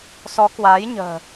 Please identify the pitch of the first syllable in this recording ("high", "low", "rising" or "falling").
rising